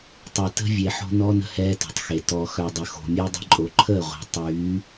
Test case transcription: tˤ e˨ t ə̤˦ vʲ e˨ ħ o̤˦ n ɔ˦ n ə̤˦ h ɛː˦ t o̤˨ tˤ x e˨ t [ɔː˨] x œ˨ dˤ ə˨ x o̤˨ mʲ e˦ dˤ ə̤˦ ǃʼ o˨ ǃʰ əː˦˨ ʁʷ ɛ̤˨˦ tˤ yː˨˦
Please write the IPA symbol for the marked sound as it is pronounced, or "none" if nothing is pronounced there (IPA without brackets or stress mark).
ɔː˨